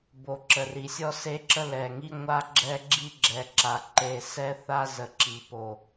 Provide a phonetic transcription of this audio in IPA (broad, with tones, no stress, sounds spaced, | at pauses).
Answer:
b o˨ ǁ ə˨ r i˨ sʲ ɔ˦ s e˦ ǁ ə˦ l ɛ˨ ŋ i˦ ŋʷ a˦ ɡ͡ǁ ɛ˦ ɡ͡ǁ i˦ ɡ͡ǁ ɛ˨ ǁ a˨ ǃ e˨ s ɛ˦ θ a˦ z ə˨ ǁ i˨ p o˨